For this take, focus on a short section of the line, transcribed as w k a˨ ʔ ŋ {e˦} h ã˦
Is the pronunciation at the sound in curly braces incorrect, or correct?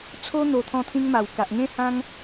incorrect